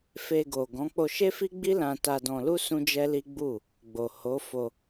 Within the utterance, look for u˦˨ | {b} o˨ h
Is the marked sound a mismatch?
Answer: yes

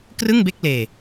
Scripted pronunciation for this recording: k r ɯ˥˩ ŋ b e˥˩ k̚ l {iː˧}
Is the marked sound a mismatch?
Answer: yes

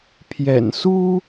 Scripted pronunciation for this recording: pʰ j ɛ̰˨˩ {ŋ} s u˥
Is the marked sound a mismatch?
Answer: yes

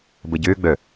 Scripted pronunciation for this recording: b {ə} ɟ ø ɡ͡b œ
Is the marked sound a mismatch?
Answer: no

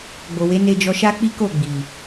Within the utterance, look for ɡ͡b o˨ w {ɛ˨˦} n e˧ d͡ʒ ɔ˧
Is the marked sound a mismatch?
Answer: yes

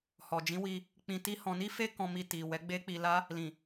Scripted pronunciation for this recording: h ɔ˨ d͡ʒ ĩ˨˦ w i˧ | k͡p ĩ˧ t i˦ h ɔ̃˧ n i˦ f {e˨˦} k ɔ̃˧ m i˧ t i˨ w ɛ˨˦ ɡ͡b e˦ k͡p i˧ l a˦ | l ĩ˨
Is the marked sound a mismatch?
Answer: yes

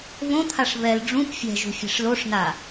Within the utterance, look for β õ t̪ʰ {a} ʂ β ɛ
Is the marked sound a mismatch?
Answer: no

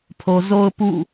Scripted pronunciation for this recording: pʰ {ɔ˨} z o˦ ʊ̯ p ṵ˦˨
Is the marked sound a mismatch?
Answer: yes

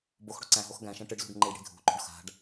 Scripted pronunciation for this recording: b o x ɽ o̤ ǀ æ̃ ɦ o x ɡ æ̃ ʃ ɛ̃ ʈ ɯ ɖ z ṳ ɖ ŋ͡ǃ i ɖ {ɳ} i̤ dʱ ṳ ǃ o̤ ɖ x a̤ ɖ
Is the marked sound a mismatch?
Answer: yes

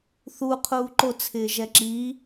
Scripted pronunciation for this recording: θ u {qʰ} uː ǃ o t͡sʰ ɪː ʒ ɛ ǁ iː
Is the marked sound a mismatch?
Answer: no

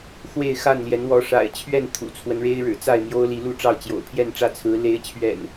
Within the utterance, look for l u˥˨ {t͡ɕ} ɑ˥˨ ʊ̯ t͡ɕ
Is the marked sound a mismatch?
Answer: yes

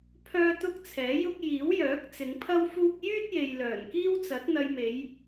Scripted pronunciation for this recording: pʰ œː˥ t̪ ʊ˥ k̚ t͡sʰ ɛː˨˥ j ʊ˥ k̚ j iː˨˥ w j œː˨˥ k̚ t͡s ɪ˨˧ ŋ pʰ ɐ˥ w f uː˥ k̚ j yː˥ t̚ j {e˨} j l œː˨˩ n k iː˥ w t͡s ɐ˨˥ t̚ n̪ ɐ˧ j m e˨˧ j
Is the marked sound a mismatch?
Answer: no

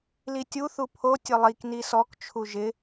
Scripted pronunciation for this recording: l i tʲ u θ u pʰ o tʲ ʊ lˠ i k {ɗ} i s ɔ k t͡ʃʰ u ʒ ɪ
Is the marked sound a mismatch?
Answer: yes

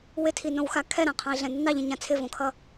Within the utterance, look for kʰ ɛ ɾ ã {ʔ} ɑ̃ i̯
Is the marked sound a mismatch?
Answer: yes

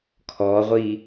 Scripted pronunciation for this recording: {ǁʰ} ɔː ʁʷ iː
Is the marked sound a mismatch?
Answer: yes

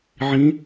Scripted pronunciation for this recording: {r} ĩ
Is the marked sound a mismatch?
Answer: yes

